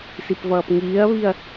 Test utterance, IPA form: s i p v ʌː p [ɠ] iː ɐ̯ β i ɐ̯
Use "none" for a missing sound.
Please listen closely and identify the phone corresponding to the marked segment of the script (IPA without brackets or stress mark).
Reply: ŋ